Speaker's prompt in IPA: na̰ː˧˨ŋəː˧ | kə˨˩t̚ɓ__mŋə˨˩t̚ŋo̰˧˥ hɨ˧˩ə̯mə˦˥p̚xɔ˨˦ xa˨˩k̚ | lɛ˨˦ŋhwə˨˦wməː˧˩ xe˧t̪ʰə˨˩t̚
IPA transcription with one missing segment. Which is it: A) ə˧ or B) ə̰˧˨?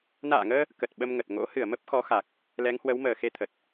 A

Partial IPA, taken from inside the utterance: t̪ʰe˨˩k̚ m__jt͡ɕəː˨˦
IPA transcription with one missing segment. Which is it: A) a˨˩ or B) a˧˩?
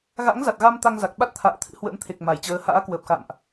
B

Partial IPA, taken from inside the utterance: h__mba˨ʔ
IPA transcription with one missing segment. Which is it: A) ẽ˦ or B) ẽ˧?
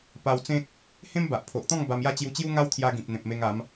A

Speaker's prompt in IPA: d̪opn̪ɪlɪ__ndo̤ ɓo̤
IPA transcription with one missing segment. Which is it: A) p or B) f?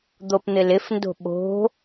B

